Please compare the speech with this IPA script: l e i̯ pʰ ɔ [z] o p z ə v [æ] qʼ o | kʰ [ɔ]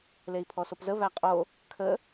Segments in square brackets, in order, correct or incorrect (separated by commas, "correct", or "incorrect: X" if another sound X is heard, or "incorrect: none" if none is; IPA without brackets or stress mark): incorrect: s, correct, incorrect: ə